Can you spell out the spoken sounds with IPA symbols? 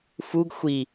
fuɡ xʷi

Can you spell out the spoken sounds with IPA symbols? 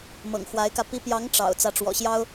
mɤ̰˨˩ŋxwa˧˥ɪ̯kä˧ pi˧˥pjɑ˧˥ŋ ʈ͡ʂɑ̰˨˩ʊ̯ t͡sä˧˥ʈ͡ʂwɔ̰˨˩ɕjɑ˥ʊ̯

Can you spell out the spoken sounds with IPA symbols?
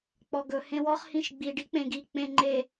k͡pɔɡɵ hẽwɔχ hĩʃɡ͡bi ɖik͡pẽɡi k͡pẽŋ͡ǃe

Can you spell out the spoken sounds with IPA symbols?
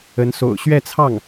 ə˧˥nso̰˨˩ʊ̯ ɕɥɛ˥˧t͡sʰɑ˥˩ŋ

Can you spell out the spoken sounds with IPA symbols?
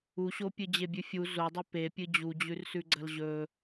uɕopʲɨ d͡ʑebʲʉfʲu zodˤɵ pepʲɨ d͡ʑud͡ʑʉrsʉɡ͡ǀɐl ʑɵ

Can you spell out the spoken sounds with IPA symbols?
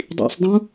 dˤḭsˤdˤũ

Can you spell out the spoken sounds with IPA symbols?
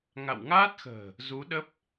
ŋa̰˧˨wŋaː˦˥t̚xə̤ː˨˩ | zu˨˦ɗə˦˥p̚

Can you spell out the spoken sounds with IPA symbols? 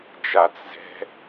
d͡ʒat͡s zɛ̤

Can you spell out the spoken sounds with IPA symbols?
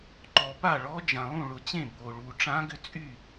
ǃɔ˨pa˥˩ɭɔ˧˥ d͡ʒã˨lˠũ˥˩ɭʊ˨t͡ɕẽ˥˩ bo˨ɭu˨ ʈ͡ʂã˧˥ɡʏ˥˩t͡sʼy˥˩

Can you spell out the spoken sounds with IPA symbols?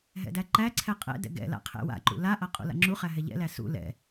ɦɛ̰dæǃæǀʰɛ qʼɛ̰dɛ̰ ɡɛ̰ la̰qʰɛ̰wa̰ǃṵ laʔa qʼṵla̰ŋ͡ǁuχæ ɦɛʎɛ̰læ sṵ lɛ̰

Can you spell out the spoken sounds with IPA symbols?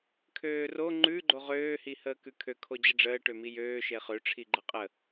kʰøːro ŋ͡ǃʉ ɡ͡ǃoʁøː hihəːkʉkʰø kʰod͡ʑəɖ͡ʐəː ʈømijøː ʃeχø ʈ͡ʂʰiɡ͡ǃəqʼə

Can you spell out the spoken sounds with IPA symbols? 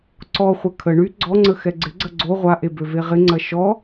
ǀɔχʷɐ kʰə ɳy ɡ͡ǀɔŋ͡ǀə xɛɡ͡ǀɪɡ͡ǀɐ ɡ͡ǀo ʁʷaʔe bøveʁɪŋ͡ǀɐ ʃɔ

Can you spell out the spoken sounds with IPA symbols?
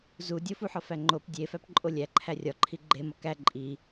zu dʲofuħɒ fæŋ͡ǃop dʲefæpǃʼo lʲæǃʰæ rʲɒǃʰi ɡ͡ǃemɒ kæ ǃʼi

